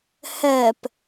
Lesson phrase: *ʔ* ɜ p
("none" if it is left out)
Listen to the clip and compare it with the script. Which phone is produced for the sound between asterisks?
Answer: h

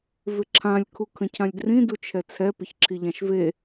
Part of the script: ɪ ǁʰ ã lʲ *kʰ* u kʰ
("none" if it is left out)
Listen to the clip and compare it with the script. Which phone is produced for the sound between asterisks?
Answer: kʰ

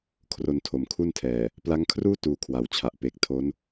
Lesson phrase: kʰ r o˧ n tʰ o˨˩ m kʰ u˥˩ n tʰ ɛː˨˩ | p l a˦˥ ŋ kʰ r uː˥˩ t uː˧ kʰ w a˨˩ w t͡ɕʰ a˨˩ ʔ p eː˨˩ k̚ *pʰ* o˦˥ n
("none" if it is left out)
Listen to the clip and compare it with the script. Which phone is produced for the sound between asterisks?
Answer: tʰ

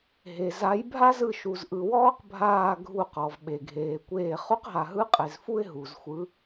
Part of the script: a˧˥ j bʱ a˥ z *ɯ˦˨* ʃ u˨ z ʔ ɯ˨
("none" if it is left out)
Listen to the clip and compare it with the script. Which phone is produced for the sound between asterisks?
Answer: ɯ˦˨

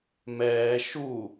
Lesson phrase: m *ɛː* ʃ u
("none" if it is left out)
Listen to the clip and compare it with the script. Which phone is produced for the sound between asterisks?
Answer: ɛː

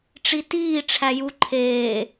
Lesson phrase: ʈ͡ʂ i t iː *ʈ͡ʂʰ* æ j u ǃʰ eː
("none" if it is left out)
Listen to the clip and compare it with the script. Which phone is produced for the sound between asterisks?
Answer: ʈ͡ʂʰ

